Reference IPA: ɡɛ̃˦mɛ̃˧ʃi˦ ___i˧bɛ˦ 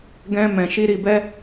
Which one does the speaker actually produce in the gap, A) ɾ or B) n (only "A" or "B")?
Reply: A